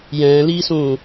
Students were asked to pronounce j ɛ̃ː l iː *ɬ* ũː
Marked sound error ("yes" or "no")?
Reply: yes